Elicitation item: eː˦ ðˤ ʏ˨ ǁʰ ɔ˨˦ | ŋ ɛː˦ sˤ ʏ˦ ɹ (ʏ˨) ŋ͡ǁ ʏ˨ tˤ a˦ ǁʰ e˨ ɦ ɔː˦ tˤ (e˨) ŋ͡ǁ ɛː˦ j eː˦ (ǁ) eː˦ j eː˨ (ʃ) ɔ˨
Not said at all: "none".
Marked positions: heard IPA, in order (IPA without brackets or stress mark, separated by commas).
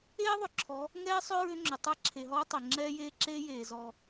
ʏ˦, e˨, ǁ, z